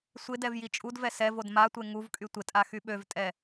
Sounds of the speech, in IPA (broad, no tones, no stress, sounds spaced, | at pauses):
sʷ ɪ d ɛ v j i t͡ʃʼ u d v ɛ s ɛ v o d m a tʷ e ŋ u v kʼ y tʷ ɪ tʼ a x y ɓ ø v tʼ ɛ